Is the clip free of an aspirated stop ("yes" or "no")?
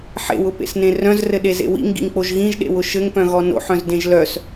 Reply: yes